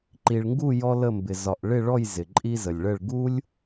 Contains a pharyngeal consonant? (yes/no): no